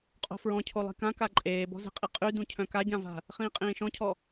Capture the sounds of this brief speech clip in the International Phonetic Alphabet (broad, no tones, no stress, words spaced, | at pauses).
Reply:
qʼo̤fɹɔ̃cʰo lˠi̤kãka ǃʼeːbɔ̤ze̤qʼi qʼydũ cʰœ̃kaɟãva̤ | χĩːqʼĩːʃɔ̃cʰɔ